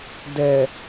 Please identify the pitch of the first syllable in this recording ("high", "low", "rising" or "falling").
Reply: low